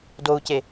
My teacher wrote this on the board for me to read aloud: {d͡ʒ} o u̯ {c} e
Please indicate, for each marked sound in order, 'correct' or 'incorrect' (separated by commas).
incorrect, correct